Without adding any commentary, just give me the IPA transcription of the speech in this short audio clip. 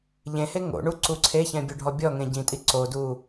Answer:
ʎẽhe ŋo̰ ɳuǀuǀʰeçɛ̃ bʲoɖʱɔbʲɔŋẽ ɟĩtʼi ǀodu

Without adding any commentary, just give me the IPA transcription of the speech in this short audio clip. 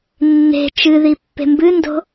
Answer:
nːe̤ t͡ʃɨði pːe̤mbɨndo̤

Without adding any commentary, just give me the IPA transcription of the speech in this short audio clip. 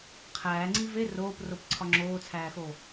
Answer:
qʰæːŋ͡ǀi ve roːpropǀʰɒ ŋ͡ǁoːt͡sʰæːxo

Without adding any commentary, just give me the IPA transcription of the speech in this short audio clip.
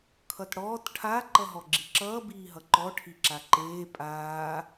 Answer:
kʰʌtɽɔːt ʈʰa ǃʌɦɔɡ͡ǁiǁʌː biːɦʌǃɔ ʈʰiǁaǃeː pʼaː

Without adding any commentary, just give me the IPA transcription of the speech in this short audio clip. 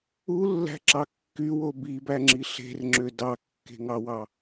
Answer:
ulːæ̤ǁɑ kːywo bibæŋ͡ǁi ɬe̤rŋ͡ǁø dɑkːe̤ŋɑwɑ

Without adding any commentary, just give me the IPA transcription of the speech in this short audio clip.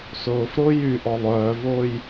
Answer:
sʊːfɾʊː jy ʔɔlˠœːvʊːj

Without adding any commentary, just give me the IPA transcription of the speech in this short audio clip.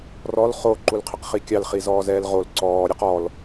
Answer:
rɔl χo ǃulqʰɪqχikʲɑl χizɔːzɛːlʁol ǀɔː ɾʲɛqɔl

